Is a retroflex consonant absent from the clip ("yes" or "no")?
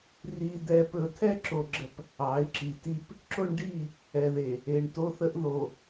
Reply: no